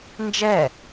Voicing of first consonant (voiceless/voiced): voiced